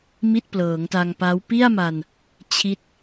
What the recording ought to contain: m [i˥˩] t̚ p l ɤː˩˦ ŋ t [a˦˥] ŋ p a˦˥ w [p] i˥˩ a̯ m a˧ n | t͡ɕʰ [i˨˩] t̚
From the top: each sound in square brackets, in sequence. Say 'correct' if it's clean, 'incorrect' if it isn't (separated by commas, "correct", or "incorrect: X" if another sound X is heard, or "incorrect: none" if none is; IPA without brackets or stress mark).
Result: correct, incorrect: a˧, correct, incorrect: i˦˥